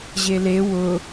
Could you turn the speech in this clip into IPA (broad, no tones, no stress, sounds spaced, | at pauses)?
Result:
ʑ e l e w ʊ